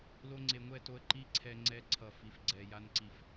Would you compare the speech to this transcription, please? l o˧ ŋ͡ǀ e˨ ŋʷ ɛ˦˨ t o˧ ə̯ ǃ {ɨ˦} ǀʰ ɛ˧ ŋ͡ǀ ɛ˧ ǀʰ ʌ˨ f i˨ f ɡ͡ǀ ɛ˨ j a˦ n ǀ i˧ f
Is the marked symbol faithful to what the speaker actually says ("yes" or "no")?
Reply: no